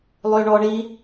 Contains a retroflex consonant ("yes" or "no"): yes